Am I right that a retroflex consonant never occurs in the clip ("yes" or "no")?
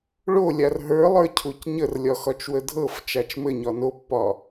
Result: no